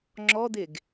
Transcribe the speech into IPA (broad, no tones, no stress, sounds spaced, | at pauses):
ŋ͡ǁ ɔ d̪ e ɡ